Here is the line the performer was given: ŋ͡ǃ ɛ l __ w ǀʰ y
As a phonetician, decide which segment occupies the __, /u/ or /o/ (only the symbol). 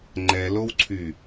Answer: o